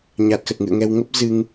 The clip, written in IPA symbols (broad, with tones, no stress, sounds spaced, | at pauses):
ɲ a˨˩ t̚ x ə˨˩ t̚ ŋ ɨ̰˧˨ ə̯ ŋ ɛ˧ w ŋ ə˦˥ p̚ z ɨ˧ ŋ